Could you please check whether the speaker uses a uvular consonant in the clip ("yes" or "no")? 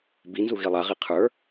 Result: yes